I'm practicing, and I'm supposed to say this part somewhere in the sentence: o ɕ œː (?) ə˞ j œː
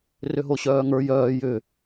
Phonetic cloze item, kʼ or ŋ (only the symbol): ŋ